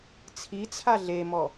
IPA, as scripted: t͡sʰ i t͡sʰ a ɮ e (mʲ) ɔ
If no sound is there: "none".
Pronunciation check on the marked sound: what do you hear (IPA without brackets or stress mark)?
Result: m